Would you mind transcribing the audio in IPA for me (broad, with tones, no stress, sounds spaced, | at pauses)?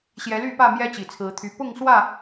ɕ j ɛ˨˦ l y˥˨ p ä˥˨ m j ɛ˦ t͡ɕ i˨˩ t͡sʰ ɹ̩˨˦ t̪ʰ y˨˦ p ʊ˥˨ ŋ s w ä˥˨